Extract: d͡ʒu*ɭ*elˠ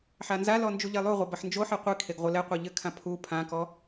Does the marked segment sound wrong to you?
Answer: yes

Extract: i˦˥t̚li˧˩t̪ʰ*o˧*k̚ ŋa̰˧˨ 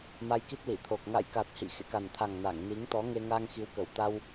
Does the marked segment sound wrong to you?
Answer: yes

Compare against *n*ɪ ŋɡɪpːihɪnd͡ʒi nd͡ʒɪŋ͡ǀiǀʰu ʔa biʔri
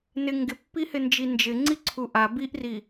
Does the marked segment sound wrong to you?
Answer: no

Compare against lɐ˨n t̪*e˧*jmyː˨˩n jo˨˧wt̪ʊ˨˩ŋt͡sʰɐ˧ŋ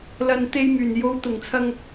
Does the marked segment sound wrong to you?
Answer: no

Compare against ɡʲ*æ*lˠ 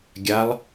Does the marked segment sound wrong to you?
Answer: yes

